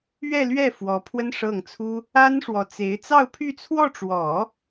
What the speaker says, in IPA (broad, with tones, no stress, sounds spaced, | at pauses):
ɥ ɛ˥˧ l ɥ ɛ˥˩ f w ɔ˧˥ pʰ w ə˥ n ʂ ɤ˥˩ ŋ t͡sʰ u˥ | a˥ n ʂ w ɔ˧˥ t͡s e˧˥ ɪ̯ t͡s ɑ˥˧ ʊ̯ pʰ y˥˧ t͡sʰ w ɔ˥˩ ʈ͡ʂ w ɔ˨˩˦